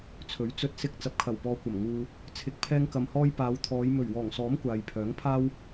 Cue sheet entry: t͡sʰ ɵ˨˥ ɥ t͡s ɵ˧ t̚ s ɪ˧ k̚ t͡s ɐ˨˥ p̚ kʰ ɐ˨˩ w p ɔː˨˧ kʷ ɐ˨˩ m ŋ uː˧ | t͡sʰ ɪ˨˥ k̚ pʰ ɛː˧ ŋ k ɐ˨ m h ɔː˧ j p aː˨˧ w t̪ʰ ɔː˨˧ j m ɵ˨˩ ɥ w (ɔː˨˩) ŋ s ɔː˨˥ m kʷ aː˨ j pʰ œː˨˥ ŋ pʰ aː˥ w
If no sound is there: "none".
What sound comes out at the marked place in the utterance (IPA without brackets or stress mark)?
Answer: ɔː˨˩